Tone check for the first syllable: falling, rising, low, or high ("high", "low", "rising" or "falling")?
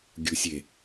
low